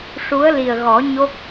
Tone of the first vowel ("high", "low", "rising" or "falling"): rising